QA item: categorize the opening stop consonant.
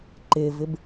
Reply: click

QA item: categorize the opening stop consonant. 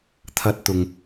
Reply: aspirated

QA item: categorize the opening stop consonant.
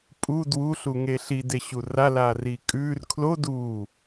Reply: ejective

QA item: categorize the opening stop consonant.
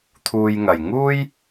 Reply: aspirated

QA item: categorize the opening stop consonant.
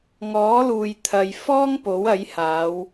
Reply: aspirated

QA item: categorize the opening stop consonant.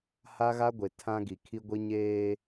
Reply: plain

